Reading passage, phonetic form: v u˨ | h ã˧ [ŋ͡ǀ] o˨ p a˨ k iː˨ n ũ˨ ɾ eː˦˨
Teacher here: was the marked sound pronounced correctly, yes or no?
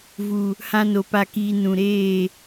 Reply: no